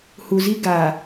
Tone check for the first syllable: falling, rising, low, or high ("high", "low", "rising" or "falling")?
low